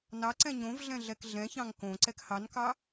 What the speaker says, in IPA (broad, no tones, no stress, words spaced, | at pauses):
nɑǀɛ̃ ɲõvɮɛ̃ ɮɛkɮɛ̃çɑ̃ŋ kõ ǀɛkhɑnkɑ